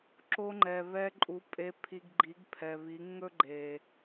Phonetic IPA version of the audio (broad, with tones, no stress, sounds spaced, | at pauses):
ǁ o˧ ŋ͡ǃ ɛ˨ β ɛ˧ ǃʼ u˨˦ pʼ e˨ pʰ i˨ ɡ ɡ͡ǃ i˨˦ ɡ pʰ ɛ˨ β i˨˦ ŋ ɵ˦ ɡ͡ǃ e˨